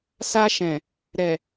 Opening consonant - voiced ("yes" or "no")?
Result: no